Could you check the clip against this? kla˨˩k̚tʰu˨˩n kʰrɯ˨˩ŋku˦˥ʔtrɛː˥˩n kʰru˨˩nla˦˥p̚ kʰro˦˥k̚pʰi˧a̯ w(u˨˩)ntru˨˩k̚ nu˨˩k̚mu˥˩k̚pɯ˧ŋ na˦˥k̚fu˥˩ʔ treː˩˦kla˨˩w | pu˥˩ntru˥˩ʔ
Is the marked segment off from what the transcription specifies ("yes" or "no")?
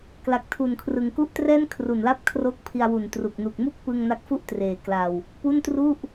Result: no